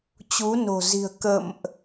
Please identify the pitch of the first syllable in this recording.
rising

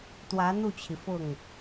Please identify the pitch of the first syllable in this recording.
rising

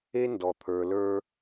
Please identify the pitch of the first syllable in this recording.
high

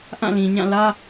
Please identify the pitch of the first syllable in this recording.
falling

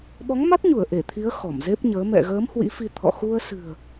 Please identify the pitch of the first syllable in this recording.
rising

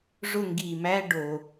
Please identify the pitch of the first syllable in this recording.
falling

